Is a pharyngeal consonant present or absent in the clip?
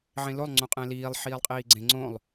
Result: present